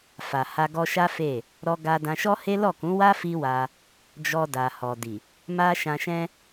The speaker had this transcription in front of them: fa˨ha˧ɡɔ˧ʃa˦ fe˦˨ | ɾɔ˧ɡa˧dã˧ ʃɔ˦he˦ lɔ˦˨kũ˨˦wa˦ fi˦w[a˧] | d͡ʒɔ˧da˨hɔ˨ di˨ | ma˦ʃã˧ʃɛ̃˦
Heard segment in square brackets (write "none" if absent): a˧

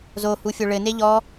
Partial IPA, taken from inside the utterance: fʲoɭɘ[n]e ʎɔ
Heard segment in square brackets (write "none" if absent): n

